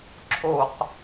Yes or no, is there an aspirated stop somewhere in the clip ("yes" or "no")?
yes